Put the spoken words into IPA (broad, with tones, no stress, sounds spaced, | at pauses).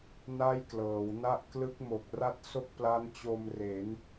n a˥˩ j k l ɤː˩˦ w n a˦˥ ʔ k l ɯ˦˥ k̚ m o˨˩ k̚ r a˥˩ t̚ s o˥˩ k̚ p l a˦˥ n t͡ɕ o˧ m r e˩˦ n